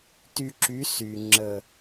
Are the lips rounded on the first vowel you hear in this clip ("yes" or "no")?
yes